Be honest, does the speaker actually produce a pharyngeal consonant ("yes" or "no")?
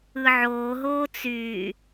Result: yes